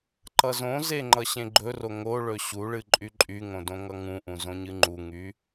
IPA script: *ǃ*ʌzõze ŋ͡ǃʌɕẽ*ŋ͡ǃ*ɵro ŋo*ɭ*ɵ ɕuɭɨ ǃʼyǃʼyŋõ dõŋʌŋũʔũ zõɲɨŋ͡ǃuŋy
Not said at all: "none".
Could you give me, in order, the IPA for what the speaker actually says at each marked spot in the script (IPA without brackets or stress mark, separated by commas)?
ǃ, ɡ͡ǃ, ɭ